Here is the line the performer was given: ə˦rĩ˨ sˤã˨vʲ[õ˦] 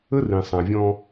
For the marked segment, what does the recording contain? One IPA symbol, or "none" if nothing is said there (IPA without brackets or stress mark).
ɔ̃˦